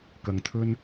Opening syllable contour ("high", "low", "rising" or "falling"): low